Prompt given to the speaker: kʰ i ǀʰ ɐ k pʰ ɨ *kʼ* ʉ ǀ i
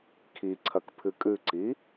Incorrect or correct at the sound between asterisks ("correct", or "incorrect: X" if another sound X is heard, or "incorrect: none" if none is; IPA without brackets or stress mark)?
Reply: correct